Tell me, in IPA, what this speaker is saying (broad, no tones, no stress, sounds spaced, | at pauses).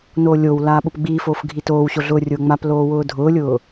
n oː lʲ o w l aː ɓ ʊ p ɡ͡b iː f oː f ɡʱ i t oː w ɕ o ɮ ʊː rʲ ʊː ŋ͡m a p l oː w ʊː dʱ ʊː lʲ ʊː